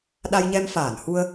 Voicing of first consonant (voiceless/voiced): voiced